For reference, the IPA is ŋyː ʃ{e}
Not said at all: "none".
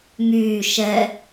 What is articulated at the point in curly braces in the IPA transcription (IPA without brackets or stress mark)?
ɛ